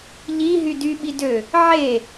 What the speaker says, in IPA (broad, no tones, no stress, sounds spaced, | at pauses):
ʎ i ɦ y d y ɓ i d ø | ʕ e